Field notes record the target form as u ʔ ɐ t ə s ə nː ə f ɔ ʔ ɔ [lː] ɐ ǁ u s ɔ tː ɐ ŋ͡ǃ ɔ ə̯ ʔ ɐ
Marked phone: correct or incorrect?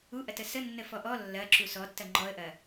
correct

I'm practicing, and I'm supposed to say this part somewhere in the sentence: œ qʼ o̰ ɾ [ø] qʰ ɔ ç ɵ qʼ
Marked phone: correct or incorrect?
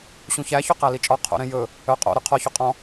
incorrect: y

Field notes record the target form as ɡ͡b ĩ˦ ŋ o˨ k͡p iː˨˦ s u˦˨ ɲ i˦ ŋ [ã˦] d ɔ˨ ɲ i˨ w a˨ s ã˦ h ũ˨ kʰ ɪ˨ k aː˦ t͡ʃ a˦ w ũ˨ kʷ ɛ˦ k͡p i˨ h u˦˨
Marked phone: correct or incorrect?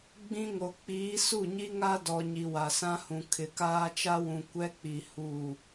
incorrect: a˦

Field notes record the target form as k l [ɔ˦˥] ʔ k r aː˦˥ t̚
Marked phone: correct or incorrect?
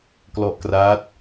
correct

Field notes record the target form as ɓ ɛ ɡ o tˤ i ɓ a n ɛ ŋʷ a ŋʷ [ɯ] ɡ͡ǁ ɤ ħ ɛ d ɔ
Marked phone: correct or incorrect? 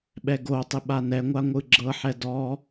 correct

